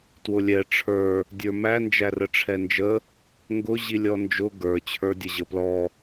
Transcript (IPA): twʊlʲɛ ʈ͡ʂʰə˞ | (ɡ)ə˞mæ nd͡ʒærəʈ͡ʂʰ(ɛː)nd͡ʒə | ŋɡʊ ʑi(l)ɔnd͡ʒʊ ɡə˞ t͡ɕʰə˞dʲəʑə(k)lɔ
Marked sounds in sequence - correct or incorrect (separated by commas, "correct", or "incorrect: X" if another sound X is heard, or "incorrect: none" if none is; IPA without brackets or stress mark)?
incorrect: dʲ, incorrect: ɛ, incorrect: lʲ, incorrect: p